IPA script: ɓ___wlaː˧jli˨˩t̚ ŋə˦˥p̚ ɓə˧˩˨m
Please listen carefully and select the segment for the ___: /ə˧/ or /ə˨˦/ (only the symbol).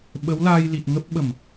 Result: ə˨˦